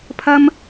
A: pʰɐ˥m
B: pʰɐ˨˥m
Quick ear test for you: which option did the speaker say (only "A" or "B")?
A